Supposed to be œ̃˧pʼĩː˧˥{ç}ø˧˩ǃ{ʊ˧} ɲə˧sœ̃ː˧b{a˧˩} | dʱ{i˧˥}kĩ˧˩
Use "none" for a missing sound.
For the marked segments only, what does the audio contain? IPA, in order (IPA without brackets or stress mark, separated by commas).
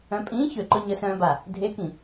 ç, ʊ˧, a˧˩, e˧˥